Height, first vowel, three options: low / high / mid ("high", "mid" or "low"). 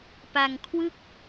low